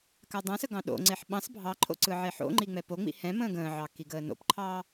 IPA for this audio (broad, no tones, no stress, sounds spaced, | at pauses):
k a dˤ ã s ə ɡ ɑ̃ ɗ o̰ ŋ͡ǀ e ħ ɓ ɑ̃ s bʱ ɑ ǃʰ o̰ ǀ ɯ ʕ e ħ o̰ ŋ͡ǃ i ŋ͡m ɛ p o ŋ͡m ḭ h ɛ̃ m ə̃ː ɡ ə̃ː ʕ ɑ k i ɡ əː n o̰ p ǃʰ ɑː